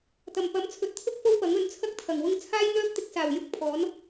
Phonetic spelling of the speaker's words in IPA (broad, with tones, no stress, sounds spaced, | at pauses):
t̪ ɐ˨˩ m p ɐ˨˥ m t͡sʰ ɵ˨˥ t̚ t̪ʰ ʊ˥ k̚ f o˥ w p ɐ˨˥ ŋ ɵ˨˥ n t͡sʰ ɐ˥ k̚ t̪ʰ ɐ˨˩ ŋ w ʊ˧ ŋ t͡sʰ aː˥ j n̪ œː˥ p̚ t̪ ɪ˧ k̚ s aː˨˩ w j ʊ˧ k̚ pʰ ɔː˨˥ n